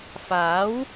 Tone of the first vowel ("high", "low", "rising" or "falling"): rising